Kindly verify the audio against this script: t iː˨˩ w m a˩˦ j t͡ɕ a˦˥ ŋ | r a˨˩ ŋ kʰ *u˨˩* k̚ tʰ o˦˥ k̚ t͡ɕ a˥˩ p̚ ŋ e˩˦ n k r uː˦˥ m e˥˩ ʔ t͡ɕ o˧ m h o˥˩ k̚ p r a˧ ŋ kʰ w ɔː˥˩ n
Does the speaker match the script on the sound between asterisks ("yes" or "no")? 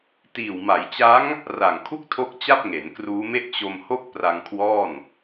no